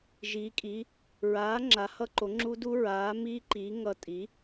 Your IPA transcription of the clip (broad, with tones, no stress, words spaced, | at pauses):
ʒiː˩˥kʼi˩˥ | ɹaː˩˥ ŋ͡ǁa˩˥hʌ˦˥ǃo˩˥ŋ͡ǁu˦˥ du˦˥ɹaː˩˥miː˦˥ǃiː˩˥ ŋʌ˦˥ tʼi˩˥